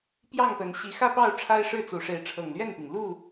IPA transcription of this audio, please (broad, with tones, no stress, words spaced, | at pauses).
pjɑ˥˨ŋpə˨˦n ɕi˨˦xä˥˨pɑ˥˨ʊ̯ ʈ͡ʂʰa˦ɪ̯ʂɻ̩˥˨t͡su˨˦ʂe˨˦ɪ̯ ʈ͡ʂʰɤ˨˩ŋlɥɛ˥˨npi˩ŋ lu˥˨